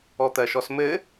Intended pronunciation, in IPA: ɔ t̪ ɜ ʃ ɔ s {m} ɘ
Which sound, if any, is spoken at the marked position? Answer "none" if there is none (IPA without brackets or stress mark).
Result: m